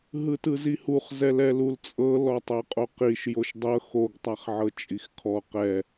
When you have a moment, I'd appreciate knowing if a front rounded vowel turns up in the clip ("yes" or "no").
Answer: no